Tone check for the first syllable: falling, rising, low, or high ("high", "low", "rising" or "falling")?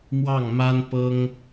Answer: falling